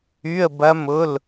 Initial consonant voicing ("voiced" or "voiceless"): voiced